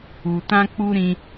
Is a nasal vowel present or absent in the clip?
present